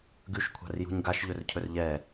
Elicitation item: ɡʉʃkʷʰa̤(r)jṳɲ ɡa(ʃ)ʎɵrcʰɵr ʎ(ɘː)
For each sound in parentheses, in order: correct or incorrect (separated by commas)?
correct, correct, incorrect